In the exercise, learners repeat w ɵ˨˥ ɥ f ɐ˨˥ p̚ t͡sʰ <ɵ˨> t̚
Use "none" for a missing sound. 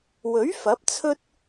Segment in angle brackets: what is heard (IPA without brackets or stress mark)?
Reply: ɵ˥